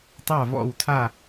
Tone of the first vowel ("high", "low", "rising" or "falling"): falling